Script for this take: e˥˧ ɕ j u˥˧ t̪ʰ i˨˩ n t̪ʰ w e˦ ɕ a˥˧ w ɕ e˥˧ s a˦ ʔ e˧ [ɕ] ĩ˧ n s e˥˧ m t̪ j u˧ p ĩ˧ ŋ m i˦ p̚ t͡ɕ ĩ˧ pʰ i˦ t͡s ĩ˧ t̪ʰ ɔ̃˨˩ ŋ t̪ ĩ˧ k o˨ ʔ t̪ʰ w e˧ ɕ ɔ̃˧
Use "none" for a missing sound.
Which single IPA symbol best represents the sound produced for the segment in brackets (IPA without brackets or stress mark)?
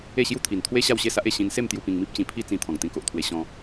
ɕ